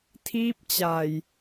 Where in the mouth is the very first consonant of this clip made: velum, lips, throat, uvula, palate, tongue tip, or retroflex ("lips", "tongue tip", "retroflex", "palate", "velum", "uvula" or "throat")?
tongue tip